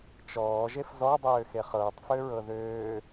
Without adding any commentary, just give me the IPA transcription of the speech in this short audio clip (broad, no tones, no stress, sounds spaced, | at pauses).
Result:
t͡ʃ ɔː ʒ e f z ɔ dˤ øː x e χ ɤː tˤ f ø ɹ ɤ ð øː